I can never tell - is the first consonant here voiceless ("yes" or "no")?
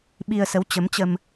no